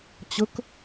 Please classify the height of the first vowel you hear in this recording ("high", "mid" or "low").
mid